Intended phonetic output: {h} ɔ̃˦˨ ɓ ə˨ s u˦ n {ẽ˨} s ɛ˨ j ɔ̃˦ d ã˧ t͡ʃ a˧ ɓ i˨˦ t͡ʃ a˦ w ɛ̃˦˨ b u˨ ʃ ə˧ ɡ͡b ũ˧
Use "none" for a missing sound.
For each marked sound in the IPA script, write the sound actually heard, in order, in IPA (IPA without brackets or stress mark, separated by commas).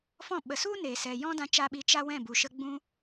f, e˨